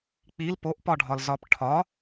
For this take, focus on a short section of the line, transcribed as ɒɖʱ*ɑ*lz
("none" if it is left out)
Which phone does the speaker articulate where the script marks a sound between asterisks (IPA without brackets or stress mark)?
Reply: ɒ